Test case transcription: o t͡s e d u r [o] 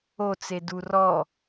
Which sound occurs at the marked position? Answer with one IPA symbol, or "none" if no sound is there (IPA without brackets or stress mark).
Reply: ɔ